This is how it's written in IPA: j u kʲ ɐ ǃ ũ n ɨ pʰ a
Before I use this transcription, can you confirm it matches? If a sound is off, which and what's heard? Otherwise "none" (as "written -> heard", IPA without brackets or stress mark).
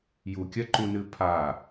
none